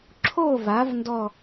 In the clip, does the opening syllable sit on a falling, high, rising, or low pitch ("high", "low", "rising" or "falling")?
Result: falling